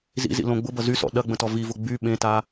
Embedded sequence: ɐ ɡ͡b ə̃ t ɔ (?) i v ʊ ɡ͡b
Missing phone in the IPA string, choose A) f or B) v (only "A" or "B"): B